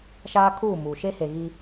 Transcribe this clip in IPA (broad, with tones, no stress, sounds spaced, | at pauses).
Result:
ʃ aː˦ kʰ uː˦˨ m uː˨ ʃ e˦ h e˨ ɣ i˦